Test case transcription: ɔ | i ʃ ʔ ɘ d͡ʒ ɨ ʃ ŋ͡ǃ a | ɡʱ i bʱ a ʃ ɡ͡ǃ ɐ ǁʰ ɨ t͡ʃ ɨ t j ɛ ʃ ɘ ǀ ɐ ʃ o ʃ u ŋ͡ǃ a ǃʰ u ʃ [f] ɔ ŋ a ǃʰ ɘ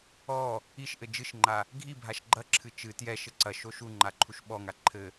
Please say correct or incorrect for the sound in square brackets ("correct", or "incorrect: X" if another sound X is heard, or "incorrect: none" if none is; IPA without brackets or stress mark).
incorrect: ɓ